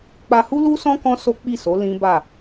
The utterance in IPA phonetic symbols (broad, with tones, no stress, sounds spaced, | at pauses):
k͡p a˧ h u˦ l u˦ s ɔ̃˦ k ɔ̃˦ s o˦ k͡p i˦˨ s o˨˦ l ĩ˦ b a˦˨